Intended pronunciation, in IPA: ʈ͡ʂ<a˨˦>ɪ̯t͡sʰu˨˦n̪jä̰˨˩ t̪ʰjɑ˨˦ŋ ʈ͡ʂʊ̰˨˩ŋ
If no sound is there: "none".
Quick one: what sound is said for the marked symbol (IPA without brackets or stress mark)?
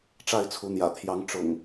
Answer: a˥˨